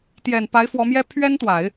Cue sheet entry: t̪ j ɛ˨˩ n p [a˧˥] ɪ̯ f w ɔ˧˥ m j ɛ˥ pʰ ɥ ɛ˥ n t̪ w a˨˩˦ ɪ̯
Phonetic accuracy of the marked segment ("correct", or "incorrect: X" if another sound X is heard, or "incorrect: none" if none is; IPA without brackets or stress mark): correct